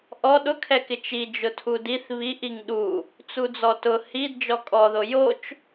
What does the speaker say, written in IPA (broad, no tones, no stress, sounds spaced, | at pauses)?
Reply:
ʔ ɔ ɗ ʊ kʰ ɛ k ɪ t͡ʃ i d͡ʒ ʊ tʰ u d i θ β i ʔ i ŋ ɗ u | t͡s u d͡z ɔ t ʊ h i d d͡ʒ ɔ kʼ ɔ ð o j o t͡ʃ